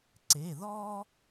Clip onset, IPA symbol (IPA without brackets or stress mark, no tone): ǀ